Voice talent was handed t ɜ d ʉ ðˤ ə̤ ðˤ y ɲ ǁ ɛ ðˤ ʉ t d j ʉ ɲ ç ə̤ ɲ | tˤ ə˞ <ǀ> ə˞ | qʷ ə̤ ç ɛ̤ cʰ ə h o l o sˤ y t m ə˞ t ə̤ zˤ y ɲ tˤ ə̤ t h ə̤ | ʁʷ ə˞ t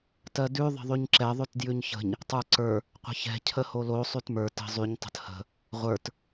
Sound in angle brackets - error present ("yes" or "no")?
no